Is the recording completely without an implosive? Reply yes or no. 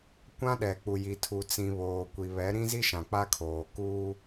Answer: no